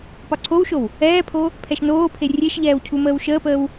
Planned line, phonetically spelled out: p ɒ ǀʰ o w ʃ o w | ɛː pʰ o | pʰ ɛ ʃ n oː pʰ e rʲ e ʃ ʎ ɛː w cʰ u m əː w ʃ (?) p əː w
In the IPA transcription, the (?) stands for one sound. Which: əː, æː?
əː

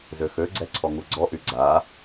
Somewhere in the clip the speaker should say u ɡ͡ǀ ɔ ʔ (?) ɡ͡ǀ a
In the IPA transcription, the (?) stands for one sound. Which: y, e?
y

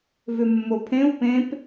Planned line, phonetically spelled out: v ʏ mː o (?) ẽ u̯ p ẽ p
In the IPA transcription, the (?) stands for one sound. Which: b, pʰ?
pʰ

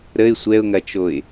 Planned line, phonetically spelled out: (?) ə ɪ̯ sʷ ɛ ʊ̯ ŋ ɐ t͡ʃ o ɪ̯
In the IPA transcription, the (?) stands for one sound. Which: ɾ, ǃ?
ɾ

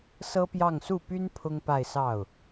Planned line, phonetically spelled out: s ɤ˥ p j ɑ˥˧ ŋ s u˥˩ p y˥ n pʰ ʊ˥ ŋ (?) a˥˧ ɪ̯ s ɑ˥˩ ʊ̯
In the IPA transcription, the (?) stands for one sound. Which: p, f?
p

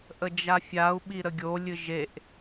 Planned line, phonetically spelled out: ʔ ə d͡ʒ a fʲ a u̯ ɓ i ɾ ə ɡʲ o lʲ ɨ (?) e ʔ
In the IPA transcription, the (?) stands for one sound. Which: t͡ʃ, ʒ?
ʒ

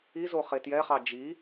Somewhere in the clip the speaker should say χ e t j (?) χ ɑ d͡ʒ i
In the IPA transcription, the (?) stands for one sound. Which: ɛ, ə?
ɛ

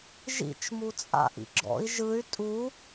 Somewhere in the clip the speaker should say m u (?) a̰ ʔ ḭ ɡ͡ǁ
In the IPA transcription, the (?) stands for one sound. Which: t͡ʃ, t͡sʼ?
t͡sʼ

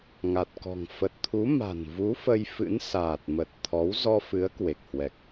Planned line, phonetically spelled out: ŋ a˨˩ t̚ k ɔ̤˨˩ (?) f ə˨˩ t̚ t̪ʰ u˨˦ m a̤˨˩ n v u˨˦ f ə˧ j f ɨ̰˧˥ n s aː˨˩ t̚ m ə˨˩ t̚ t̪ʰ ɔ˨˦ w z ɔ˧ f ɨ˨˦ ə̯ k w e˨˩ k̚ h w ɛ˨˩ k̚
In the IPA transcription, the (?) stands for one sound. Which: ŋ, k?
ŋ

